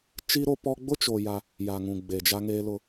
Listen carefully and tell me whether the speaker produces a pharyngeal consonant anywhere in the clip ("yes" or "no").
no